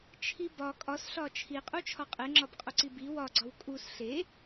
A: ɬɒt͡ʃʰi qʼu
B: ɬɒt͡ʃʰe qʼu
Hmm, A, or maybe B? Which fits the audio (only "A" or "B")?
A